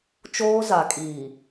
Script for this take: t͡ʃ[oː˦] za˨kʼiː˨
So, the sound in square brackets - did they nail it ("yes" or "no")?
yes